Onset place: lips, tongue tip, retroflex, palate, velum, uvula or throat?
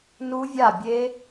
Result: tongue tip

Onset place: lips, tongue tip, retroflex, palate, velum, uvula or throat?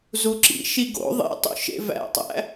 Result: tongue tip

